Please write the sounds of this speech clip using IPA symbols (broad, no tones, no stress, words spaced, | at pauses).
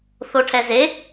θoʈʰɛze